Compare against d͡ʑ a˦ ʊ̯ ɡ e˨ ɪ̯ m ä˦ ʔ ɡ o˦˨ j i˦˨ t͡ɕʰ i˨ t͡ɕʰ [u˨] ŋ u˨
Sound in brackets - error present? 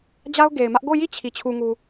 no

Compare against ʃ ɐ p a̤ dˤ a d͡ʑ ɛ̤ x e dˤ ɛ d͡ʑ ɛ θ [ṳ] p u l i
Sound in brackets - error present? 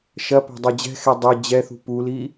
no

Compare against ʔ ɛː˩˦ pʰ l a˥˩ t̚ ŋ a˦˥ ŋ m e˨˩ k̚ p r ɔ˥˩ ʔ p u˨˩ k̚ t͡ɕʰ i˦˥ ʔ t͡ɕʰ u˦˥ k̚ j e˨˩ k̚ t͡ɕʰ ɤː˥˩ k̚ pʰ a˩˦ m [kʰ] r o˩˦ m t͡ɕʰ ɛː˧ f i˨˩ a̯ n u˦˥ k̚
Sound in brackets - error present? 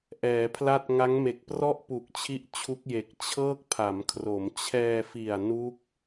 no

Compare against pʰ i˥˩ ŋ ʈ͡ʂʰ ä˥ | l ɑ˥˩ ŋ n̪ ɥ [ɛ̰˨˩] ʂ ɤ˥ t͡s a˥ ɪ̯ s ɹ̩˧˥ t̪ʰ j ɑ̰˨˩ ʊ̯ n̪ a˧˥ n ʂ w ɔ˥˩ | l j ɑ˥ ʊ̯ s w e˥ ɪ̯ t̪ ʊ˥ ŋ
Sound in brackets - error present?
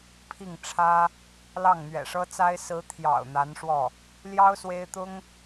no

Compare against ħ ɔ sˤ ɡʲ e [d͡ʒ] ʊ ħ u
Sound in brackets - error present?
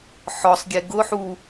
yes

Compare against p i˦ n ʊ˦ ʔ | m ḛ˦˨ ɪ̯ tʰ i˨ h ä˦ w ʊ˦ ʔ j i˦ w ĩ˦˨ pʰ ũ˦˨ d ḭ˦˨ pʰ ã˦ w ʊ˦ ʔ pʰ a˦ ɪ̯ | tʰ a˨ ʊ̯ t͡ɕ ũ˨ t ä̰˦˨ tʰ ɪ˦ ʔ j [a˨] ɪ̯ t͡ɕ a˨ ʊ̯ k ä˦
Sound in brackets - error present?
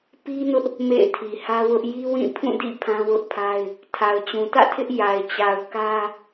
no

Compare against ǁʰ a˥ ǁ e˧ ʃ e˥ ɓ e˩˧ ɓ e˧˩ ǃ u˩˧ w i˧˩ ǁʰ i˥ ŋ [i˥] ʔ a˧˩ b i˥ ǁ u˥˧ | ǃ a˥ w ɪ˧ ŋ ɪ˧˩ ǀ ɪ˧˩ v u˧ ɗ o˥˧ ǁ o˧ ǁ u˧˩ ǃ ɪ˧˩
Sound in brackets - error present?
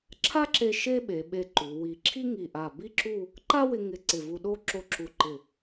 yes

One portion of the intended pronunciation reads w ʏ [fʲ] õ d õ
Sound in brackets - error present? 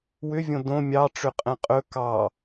yes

